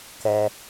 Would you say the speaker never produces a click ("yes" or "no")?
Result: yes